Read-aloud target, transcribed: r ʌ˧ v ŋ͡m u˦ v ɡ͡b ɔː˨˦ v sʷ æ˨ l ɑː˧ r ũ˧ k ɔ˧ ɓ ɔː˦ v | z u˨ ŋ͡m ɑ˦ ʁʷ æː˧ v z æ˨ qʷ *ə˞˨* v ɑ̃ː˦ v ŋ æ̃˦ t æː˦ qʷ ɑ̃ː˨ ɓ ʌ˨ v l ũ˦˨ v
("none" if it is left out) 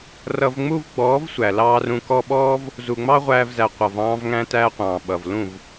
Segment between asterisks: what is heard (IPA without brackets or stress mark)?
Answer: ʌ˨